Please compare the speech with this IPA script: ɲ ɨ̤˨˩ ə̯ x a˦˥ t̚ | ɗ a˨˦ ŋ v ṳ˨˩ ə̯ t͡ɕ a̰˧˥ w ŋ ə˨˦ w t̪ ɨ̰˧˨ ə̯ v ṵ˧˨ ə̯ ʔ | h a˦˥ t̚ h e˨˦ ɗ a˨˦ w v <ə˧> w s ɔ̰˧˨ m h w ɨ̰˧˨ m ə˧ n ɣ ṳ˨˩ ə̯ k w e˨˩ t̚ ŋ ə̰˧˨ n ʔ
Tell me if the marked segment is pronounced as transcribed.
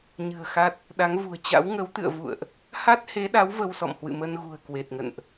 yes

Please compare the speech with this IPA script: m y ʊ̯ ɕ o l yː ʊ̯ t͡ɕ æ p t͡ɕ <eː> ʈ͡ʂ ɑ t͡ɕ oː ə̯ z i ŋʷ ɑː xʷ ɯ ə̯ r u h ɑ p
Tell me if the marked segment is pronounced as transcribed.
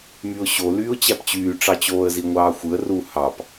no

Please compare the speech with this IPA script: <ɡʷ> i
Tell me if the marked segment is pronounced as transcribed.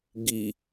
no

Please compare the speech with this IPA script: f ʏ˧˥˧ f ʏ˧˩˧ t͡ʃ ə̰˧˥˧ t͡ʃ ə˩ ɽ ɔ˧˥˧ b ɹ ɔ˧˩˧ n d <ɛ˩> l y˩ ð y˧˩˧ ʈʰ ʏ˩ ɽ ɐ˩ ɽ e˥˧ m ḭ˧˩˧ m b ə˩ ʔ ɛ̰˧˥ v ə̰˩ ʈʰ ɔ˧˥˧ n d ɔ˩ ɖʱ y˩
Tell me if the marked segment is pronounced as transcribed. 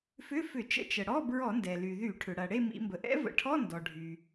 yes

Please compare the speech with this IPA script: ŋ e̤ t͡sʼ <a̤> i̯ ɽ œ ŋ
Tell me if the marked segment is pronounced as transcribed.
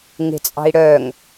no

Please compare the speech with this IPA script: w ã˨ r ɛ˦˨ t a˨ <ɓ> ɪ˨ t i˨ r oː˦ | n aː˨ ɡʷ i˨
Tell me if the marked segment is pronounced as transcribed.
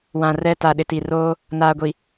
no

